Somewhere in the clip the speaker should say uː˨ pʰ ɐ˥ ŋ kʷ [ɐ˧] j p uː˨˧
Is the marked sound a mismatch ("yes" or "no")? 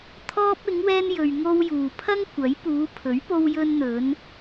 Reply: yes